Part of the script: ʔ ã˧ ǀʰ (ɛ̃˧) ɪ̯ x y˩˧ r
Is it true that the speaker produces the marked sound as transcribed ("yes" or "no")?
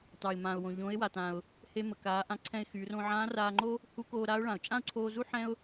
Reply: yes